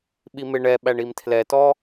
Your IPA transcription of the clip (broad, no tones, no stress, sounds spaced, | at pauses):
ɓ i m ɪ ɳ ɛ ɓ æ ɳ i m tʰ l ɛ t ɔ